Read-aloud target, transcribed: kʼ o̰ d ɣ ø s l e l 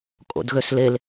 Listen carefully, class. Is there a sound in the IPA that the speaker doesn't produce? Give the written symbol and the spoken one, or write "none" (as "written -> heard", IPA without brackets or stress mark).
none